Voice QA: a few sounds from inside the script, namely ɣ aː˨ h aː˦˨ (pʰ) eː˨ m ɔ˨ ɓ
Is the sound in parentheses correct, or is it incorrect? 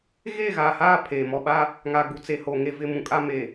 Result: correct